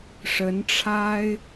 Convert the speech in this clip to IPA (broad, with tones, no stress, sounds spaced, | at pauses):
ʂ ə˧˥ n ʈ͡ʂʰ a˥ ɪ̯